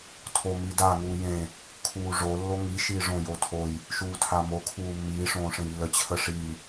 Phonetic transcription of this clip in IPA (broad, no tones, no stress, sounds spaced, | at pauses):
tʰ o m i d a ŋ uː j ẽ | kʰ uː ʐ o lː o ŋ i ʃ iː ʐ õ j o tʰ o j | ʃ uː tʰ a m o kʰ uː mː iː ʂ õː ʂ ẽ j lː ə t͡ɕʰ ə ʂ i